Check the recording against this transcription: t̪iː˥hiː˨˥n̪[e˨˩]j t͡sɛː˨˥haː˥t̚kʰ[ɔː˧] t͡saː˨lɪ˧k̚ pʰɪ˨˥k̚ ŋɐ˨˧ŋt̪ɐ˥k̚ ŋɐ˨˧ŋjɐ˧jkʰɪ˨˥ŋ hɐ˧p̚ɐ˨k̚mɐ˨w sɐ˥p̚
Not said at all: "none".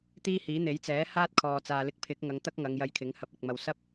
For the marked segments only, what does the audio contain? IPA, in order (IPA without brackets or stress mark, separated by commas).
e˨˥, ɔː˨